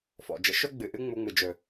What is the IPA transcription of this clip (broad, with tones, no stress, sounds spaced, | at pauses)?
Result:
f ɔ̰˩ d͡ʒ ə̰˥ ʃ ɵ˥ ɡ͡b ɨ˩ ʔ ɨ˥ ŋ͡m u˧ ŋ͡m ɨ˩ d͡ʒ ɵ˩